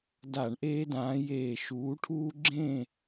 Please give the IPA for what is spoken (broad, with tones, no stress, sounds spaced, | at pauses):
d a˧˩˧ ɳ ʔ eː˦ d ãː˨˦ j eː˧˩ ʃ uː˨˦ ʈʰ uː˦ ɡ͡ǁ ẽ˥˨